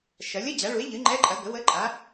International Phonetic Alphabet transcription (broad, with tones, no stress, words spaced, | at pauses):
ʃɐ˩˥lʲə˧˥˧ d͡ʑa˩˥ɭu˩˥e̯ʎɨ˩˥ ŋ͡ǃɛ˧˥˧ǃʼɐ˩˥ ɡə˩˥wə˧˥˧ ǃʼa˩˥